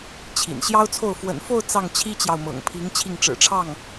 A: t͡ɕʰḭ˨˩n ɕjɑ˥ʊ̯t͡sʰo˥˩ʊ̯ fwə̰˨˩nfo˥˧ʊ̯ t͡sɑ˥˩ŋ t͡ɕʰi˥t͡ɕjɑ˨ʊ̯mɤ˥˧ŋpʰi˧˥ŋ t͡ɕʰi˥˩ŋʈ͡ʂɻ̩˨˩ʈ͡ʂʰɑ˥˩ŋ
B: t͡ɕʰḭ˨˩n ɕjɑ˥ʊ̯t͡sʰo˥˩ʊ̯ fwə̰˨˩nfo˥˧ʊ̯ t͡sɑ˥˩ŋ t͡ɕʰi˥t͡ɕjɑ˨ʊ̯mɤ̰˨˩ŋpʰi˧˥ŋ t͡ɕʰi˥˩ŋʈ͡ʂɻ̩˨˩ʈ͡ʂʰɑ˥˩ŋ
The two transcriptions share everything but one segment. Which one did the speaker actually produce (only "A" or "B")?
B